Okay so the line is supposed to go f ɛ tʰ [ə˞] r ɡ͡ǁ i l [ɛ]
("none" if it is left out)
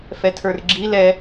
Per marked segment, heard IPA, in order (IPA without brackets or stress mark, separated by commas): ə˞, ɛ